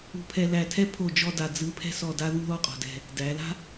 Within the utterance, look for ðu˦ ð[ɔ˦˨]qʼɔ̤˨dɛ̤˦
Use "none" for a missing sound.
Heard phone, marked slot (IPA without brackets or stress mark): ɔ˦